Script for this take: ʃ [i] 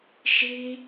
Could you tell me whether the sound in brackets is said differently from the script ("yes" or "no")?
no